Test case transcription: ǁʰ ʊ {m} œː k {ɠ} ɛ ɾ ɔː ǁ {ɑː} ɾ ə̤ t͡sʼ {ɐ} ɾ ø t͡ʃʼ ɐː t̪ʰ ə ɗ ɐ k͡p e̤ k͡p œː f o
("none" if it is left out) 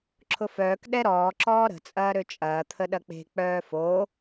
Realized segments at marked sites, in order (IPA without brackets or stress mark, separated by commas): f, ɗ, ɔː, ɐː